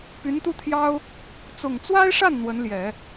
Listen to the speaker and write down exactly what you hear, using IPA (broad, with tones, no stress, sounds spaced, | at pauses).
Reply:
p y˧˥ n t̪ u˥˩ t̪ʰ j ɑ˥ ʊ̯ | t͡s ʊ˨˩ ŋ t͡s w a˥ ɪ̯ ʂ a˥˩ n n̪ w ə˧˥ n l j ɛ˨˩˦